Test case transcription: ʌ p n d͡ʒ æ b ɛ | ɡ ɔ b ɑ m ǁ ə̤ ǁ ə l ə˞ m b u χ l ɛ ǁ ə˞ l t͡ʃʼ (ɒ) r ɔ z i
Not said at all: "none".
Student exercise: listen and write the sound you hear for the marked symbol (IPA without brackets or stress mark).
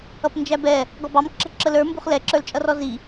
ʌ